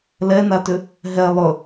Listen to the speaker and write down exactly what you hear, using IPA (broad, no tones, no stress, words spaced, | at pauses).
lɛnatʏ | ɦɛ lˠɵ